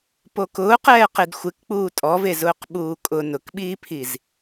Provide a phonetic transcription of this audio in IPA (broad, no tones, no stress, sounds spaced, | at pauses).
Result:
p o k ʊː q ɛː q e d xʷ ɪ k k͡p uː tʼ ɔ v e z ʊː q ɓ uː kʼ ʊ n ʊ k ɓ iː pʰ i z